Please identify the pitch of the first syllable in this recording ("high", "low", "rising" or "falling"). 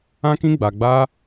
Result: high